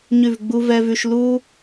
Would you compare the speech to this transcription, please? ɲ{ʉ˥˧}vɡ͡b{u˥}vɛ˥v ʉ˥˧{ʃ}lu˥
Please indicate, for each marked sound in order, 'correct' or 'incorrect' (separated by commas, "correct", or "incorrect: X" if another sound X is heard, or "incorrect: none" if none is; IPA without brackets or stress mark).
correct, correct, correct